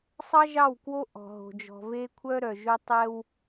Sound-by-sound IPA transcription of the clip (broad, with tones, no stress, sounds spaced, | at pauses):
sˤ ɑ˦ ʒ ɑ˦˨ w k w o˦ ʔ ɔ̤˨ ɦ o̤˨ d͡ʒ ɔ̤˨ v e˦ kʷʰ œ˦ ɾ œ˨ ʒ ɵ˦ tˤ ɛ˦ w